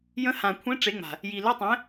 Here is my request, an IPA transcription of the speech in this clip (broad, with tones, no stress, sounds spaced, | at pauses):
j ə̃˨˥ h ã˨˩ kʷʰ ẽ˨˥ ʈ͡ʂ e˨˥ ŋ͡m a̤˨˩ | j i˨˩ l ɘ˧˥˧ tˤ ɛ̃˨˥